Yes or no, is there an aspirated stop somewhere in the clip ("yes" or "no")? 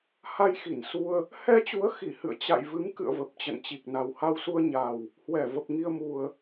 no